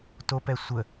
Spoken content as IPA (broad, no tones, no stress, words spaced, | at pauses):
topɛ sʷə